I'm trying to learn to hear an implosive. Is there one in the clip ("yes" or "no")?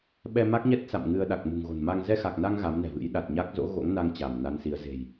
yes